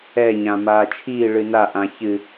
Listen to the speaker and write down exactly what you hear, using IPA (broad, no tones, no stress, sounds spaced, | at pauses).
ɛ ɲ ã m aː t͡ʃʰ iː ɭ ɨ n a ʔ ã ç ɨ